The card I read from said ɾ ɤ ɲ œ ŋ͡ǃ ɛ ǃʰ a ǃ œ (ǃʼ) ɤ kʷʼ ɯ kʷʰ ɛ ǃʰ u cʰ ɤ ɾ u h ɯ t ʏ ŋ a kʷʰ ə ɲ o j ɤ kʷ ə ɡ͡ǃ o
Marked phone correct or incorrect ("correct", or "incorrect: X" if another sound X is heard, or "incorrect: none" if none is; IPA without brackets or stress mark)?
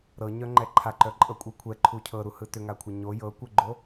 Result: correct